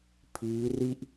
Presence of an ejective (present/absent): absent